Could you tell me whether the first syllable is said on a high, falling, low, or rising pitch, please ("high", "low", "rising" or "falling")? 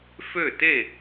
falling